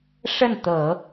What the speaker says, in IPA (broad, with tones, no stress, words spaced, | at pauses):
ʂə˥˩nt̪ɤ˨˩˦